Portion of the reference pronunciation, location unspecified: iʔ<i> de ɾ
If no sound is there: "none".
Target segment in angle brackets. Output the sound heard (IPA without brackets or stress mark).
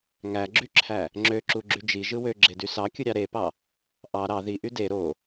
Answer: y